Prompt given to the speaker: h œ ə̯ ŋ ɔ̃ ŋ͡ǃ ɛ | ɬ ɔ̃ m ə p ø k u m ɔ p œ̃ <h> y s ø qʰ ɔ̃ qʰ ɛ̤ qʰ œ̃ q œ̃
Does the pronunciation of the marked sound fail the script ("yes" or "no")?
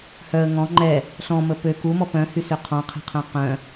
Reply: no